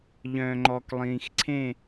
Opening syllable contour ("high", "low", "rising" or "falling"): low